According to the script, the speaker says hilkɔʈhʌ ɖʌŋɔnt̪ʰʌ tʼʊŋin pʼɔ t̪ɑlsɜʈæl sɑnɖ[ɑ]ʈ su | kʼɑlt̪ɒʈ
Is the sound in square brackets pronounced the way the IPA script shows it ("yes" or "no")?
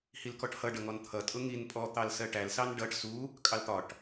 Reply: no